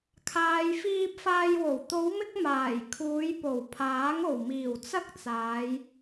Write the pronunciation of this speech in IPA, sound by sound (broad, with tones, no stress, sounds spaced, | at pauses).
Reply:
kʰ aː˨ j f iː˧ p̚ f aː˧ j w o˨˩ w t̪ o˨˧ w m ɪ˧ k̚ m aː˨˩ j kʰ uː˨˧ j p o˨˩ w pʰ aː˨˥ ŋ o˨˩ w m iː˨˩ w t͡s ɐ˥ k̚ t͡s aː˨˧ j